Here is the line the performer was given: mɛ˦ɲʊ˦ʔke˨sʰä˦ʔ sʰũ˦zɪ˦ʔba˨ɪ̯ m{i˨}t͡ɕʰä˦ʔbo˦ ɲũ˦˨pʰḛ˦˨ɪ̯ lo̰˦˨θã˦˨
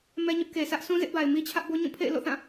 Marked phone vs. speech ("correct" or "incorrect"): incorrect